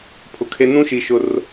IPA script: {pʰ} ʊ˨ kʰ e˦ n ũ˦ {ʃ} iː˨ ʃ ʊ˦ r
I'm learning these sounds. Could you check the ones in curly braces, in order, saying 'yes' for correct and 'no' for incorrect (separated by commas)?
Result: yes, yes